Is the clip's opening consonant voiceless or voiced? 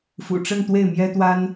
voiceless